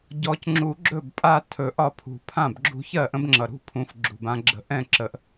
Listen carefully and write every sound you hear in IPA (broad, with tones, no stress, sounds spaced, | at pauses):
ɟ ɔ˨˩˦ c ŋ͡ǁ u˨˩˦ ɡ͡ǁ ɵ˥˩ b pʼ a˦ tʰ ɵ˨˩ ʔ ɒ˦ pʰ ṳ˨˩ pʰ ã˥˩ b ɡ͡ǁ ṳ˦ ç ɜ˥˩ ʔ ə̃˦ b ŋ͡ǁ ʌ˨˩ ɾ ṳ˦ pʰ ũ˨˩ f ɡ͡ǁ ṳ˨˩ b ã˦ ɡ͡ǁ ə̤˦ ʔ ɛ̃˥˩ ǁ ə˨˩˦ ʔ